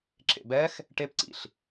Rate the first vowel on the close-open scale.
mid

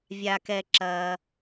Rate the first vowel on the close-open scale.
open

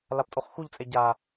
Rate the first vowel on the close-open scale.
open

